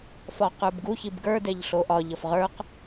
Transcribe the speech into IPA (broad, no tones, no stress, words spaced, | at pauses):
fɒqə˞bɡuçib ɡə˞dɛʎ ɬoʔɒ ʎʌfʁə˞q